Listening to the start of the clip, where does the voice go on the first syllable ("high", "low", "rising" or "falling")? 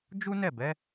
high